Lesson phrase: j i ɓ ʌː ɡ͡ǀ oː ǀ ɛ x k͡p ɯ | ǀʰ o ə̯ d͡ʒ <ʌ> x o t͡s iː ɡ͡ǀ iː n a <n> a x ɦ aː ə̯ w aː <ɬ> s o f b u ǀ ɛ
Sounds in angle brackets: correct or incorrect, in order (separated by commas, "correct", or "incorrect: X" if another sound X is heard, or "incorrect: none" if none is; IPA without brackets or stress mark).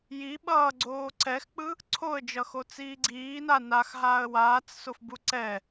correct, correct, incorrect: t͡s